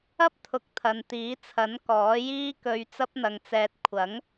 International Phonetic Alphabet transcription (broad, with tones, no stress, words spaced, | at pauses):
ɐ˥p̚t̪ʰʊ˨˥k̚t̪ʰɐ˨n t̪iː˨˥t͡sʰɐ˨˥n kɔː˨˥jiː˥kɵ˧ɥ t͡sɐ˥p̚n̪ɐ˧ŋt͡sɛː˧t̚ kʷʰɐ˨˥ŋ